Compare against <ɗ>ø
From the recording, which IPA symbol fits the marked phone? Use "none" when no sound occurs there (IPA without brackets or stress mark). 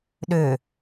ɗ